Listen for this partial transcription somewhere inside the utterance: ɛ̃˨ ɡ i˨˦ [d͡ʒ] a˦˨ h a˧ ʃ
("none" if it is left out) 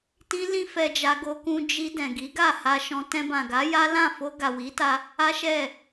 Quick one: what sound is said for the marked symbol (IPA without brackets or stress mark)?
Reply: ɡ